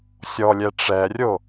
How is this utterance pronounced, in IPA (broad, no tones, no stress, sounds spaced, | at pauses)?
sʲ ɔ lʲ ɛ ʈ͡ʂ ɛ rʲ o